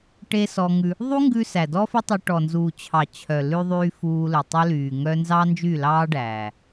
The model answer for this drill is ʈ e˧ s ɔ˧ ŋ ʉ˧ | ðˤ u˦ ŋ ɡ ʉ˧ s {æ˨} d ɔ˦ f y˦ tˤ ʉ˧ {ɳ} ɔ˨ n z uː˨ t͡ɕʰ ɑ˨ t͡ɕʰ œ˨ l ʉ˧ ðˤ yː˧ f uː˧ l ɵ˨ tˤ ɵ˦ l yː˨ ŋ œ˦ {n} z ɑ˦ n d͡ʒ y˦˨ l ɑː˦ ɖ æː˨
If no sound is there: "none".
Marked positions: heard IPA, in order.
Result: æ˨, ʈ, n

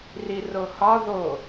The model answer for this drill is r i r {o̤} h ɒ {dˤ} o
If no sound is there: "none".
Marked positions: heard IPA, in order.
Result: o, ð

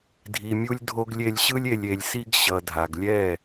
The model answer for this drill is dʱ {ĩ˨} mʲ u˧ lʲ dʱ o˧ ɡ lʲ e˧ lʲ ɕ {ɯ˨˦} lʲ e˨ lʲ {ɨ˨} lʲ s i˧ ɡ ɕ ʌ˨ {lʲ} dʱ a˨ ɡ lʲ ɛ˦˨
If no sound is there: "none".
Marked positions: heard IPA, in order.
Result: i˨, ɯ˦, e˨, none

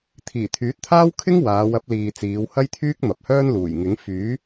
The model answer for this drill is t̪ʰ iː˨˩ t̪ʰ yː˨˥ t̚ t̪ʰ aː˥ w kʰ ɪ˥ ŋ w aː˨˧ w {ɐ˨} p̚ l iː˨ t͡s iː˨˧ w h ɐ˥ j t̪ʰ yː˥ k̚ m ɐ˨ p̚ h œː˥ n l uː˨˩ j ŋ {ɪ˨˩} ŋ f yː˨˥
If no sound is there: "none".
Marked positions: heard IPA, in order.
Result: ɐ˨˥, ɪ˨˥

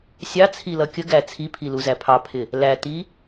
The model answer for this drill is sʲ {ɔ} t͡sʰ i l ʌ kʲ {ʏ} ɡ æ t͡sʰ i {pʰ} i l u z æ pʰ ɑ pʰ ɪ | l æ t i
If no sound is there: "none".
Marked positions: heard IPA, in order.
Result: ɑ, ə, pʰ

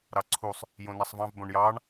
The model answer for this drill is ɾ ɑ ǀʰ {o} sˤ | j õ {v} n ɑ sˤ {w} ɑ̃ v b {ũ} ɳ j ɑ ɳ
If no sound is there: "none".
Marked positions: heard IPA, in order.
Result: u, none, v, õ

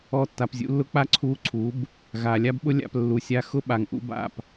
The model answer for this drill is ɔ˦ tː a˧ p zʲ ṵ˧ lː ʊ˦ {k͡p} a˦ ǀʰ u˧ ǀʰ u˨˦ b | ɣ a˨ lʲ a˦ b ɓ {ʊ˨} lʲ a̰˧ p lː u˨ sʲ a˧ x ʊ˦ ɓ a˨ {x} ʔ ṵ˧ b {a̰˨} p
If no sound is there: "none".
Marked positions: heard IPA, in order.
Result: k͡p, ʊ˦, ŋ, a̰˦˨

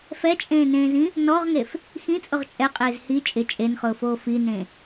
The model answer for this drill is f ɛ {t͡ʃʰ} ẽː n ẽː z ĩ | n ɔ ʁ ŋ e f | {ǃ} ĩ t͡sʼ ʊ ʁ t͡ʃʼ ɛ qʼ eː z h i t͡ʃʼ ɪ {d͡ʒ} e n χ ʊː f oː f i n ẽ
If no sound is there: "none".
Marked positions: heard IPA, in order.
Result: t͡ʃʼ, x, t͡ʃʼ

